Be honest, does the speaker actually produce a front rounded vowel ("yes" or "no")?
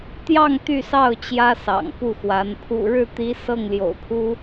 yes